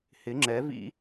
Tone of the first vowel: rising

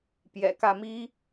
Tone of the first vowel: low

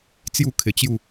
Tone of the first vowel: falling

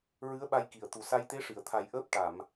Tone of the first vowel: rising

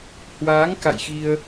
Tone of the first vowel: rising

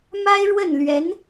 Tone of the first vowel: high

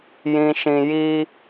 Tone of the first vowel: low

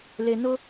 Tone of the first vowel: low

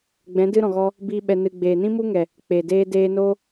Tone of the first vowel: rising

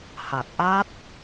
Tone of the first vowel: low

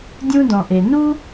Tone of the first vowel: high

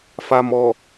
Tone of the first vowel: low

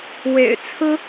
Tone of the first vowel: low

